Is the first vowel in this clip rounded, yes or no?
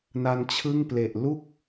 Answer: no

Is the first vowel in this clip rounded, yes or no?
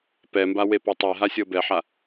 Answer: no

